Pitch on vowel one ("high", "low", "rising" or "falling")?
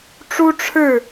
high